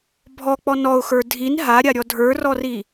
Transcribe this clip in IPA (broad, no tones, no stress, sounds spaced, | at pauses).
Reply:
bʱ ɔ k͡p ɔ n ɔ ʊ̯ x ə˞ dʱ i n ɦ a ɾʲ a ɾʲ ɔ dʱ ə˞ r ɔ r i